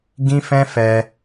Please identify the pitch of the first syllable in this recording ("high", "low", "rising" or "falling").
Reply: high